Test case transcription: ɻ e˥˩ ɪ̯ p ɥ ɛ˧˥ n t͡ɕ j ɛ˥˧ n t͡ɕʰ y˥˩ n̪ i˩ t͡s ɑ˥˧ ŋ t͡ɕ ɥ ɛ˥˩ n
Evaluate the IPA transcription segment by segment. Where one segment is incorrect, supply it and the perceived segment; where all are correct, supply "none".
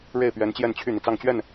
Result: none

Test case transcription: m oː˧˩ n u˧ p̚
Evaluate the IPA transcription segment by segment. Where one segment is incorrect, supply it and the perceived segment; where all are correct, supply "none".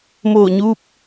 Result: n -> ɲ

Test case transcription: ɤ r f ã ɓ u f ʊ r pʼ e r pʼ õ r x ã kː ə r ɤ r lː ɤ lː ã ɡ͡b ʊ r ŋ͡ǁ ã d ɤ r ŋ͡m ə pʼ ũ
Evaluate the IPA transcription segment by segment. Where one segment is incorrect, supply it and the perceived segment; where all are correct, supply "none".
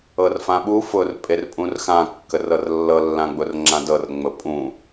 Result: õ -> ũ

